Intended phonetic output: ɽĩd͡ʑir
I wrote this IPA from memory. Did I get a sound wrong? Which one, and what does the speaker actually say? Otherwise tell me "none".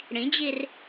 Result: none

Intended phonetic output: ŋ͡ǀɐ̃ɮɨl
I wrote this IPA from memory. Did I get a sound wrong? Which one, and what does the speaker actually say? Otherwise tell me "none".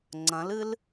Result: ɮ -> l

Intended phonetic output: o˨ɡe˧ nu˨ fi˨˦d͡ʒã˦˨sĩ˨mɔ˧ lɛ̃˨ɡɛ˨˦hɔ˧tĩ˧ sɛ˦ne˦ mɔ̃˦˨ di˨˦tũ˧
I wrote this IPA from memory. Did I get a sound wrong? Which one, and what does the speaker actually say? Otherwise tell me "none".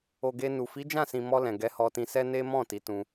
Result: d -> t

